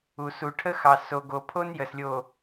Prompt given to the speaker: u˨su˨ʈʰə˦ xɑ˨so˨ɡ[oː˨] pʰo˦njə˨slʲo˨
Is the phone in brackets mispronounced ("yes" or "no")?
yes